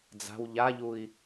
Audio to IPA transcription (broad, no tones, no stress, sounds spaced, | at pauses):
d͡z a̤ w ʎ a ʎ u i̯